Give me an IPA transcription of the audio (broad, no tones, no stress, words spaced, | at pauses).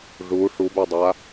ʐu ʂubødˤa